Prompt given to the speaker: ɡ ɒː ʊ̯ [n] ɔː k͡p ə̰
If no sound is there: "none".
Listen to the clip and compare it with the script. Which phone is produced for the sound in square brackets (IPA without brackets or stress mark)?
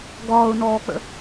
n